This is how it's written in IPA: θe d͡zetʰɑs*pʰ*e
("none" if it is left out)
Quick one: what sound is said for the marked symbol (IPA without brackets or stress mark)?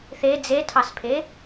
pʰ